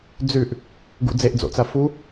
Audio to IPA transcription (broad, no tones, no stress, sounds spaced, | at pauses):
d͡z ʉ ʔ | ɡ ṵ d͡z e ʔ d͡z o̰ t͡s ɐ f u